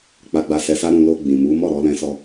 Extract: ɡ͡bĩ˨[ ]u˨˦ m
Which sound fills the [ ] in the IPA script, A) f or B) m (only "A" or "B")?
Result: B